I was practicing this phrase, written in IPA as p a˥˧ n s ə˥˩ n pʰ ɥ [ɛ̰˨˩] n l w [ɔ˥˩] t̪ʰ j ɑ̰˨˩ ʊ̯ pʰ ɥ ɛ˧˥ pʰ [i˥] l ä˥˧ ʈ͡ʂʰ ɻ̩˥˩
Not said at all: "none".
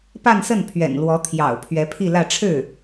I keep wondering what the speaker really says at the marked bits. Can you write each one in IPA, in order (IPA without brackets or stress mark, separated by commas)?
ɛ̰˨˩, ɔ˧˥, i˥˧